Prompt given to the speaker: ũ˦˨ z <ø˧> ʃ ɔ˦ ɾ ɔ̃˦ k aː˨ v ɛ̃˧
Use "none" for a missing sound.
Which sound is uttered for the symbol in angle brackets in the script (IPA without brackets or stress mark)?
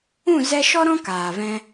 ɛ˧